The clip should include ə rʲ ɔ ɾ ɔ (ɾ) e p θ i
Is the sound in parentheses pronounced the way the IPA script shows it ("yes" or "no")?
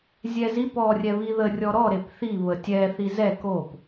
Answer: yes